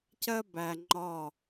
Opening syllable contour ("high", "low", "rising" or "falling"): high